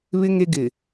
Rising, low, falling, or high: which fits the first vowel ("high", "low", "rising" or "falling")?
high